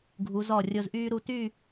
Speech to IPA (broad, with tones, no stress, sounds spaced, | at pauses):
ɡʱ u˩˧ z ɔ˧˩ rʲ o˧ z ʔ yː˥ ɾ u˧ t y˥˧